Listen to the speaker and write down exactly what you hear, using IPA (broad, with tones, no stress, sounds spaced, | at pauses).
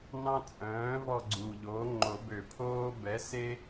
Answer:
n ɑ̃˦ t͡sʼ œ̃ː˩˥ v ɔ˦˨ ɡ͡ǀ u˨˩ ʎ oː˩˥ ŋ͡ǃ o˨˩˦ b ø˨˩˦ pʰ oː˦ b ɛ˩˥ s e˦